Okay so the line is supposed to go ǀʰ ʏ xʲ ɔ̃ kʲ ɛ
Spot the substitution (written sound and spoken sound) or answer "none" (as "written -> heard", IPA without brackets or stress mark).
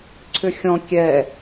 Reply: none